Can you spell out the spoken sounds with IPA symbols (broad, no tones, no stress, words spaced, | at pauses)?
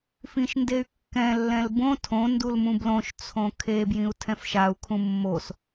fĩʃndey̯kːɛ̃ lːɛ̃lbõ tʰõ ndulmũblõʃ t͡sʰõkʰe bjĩu̯tʰɛ̃fʃau̯ kʰũmːos